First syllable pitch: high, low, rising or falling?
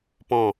falling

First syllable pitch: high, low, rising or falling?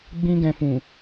high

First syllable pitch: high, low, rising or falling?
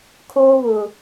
high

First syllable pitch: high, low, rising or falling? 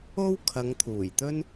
high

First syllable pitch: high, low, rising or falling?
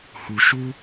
low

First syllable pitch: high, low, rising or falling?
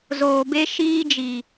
low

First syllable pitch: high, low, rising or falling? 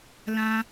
high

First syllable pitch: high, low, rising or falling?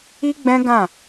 high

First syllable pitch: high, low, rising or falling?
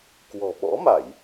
low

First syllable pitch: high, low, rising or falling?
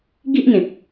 high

